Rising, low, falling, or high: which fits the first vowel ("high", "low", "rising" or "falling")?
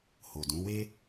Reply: low